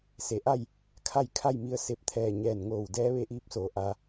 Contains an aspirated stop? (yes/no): yes